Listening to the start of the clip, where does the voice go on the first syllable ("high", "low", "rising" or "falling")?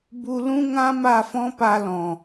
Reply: high